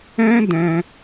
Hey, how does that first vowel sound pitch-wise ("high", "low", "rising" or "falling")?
high